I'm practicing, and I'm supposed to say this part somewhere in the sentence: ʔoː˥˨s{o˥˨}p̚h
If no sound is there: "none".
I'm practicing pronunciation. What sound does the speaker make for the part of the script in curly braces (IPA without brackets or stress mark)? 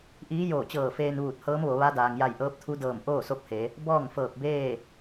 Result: o˧˥